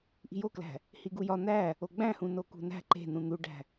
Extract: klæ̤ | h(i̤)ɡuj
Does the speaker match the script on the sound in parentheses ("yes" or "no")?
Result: no